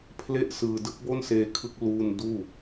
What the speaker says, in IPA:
pʰ l e˥˩ ʔ s ɯː˧ d ɯ˦˥ k̚ b o˥˩ n s eː˧ kʰ ɯ˦˥ k̚ l uː˥˩ n d uː˥˩

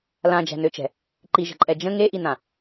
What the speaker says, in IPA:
l ã d͡ʒ æ̤ n ø t͡ʃ ɛ̤ | ǃ i ʒ ə̤ ǃʼ ɛ d͡ʒ ə̃ ŋ e ʔ i n ã

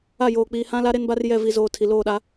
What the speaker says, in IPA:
a˦˨ j oː˨ k͡p iː˨ h ã˦ l a˦ ɾ e˦ n b a˦ r j ɛ˦˨ v i˨ z oː˨ tʰ i˨ l oː˦˨ ɗ a˦

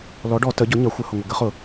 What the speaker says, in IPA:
l ɔ˩˥ ɖ ɔ˧˩˧ t ə˩˥ ɟ ʊ˩˥ ɲ ʌ˩˥ xʷ ə˩˥ h ʊ˩ ŋʷ ə˩ ɡ ə˩˥ χ ʊ˧˩˧

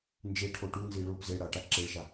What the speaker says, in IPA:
n d͡ʒ e ʈʰ o ʈ u n z i ɭ o p z e ɽ a ʈ a ǁ e ɭ ʃ a

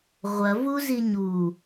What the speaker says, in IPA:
ʁʷ ɐ v u z i ɲ u

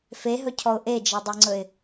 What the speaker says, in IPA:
f e ɦ ɵ cʰ ɔ ʊ̯ ʔ e d͡ʒ ɛ dˤ e ŋ͡ǀ ɵ ɪ̯

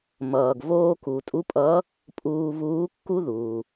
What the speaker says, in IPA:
m ʌː˩ ɡ v oː˧ k u˩ tʼ u˧˥ pʼ ʌ˧˥ | pʼ uː˧ v uː˧˥ kː u˥ ð uː˩

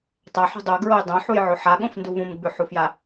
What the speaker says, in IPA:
tˤ a ħ ṳ dˤ o ɡ ɹ o j dˤ õ ħ u j ʕ o ħ a ɠ õ f n d u v ũ m ɡ͡b ʉ ħ u f j a

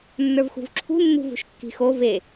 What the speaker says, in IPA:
nː ə˞ v x ṳ v ǁʰ ṳ nː ṳ v ṳ ʃ kː i̤ x o v e

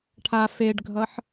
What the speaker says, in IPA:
ʈʰ a f e ɖ ɡʱ ʌ ħ

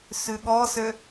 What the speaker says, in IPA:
s ʉ ɠ ɔ s ø

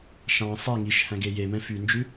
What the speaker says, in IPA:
ʃ ɑ̃ sˤ e ŋ i ʃ h æ̃ ɡ e j e m ɛ̃ f y n d͡ʒ ʉ

